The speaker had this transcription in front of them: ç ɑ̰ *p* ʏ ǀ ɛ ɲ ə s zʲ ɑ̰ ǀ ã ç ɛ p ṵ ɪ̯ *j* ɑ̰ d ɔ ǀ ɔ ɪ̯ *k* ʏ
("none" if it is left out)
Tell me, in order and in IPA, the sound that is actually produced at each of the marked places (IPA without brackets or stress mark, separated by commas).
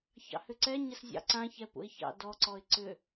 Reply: h, ç, ǀ